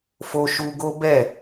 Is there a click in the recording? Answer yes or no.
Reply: no